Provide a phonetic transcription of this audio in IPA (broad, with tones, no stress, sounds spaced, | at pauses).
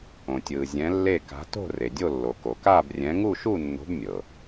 õ˩ tʲ ɯː˩ zʲ ɛ̃˨˥ lː e˥˨ k a̤˨˥ t o̤˥˨ r e˩ dʲ o˥˨ lː o˩ k o˩ k aː˥˨ b rʲ ɛ̃˨˥ ŋ u˥˨ ʃ u˥˨ nː o̤˨˥ b mʲ ɤ˩